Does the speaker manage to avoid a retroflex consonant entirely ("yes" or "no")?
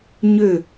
yes